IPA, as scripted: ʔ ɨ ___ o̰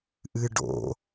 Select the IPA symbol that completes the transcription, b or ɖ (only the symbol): ɖ